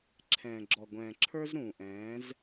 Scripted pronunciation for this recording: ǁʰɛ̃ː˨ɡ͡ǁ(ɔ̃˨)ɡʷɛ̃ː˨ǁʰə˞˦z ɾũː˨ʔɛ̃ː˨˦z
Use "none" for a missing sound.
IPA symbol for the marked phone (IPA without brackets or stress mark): ɔ˨